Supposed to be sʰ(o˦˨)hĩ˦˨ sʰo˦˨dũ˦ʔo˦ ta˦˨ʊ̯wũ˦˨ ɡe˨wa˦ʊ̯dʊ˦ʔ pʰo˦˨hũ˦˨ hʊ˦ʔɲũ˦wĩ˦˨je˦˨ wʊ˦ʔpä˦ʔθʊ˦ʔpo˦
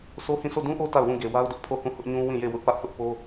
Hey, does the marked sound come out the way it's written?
no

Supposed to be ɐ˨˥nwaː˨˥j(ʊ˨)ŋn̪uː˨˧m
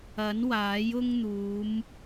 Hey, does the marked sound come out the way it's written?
no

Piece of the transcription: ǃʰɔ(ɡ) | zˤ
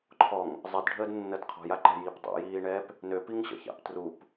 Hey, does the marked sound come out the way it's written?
no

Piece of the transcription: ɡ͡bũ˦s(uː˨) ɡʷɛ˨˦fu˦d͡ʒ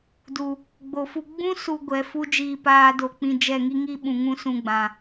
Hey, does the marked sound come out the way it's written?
no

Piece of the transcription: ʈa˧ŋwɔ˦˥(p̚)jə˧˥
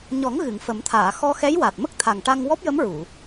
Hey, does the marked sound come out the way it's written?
yes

